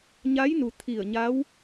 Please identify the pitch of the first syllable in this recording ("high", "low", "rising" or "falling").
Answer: rising